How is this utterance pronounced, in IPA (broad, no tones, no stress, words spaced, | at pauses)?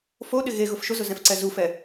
foɗɪ ɣe ɣʊfʃʊzʊ zɛ̃fǀɛzufɛ